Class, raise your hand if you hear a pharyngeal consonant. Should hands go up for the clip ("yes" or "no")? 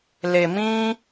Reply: no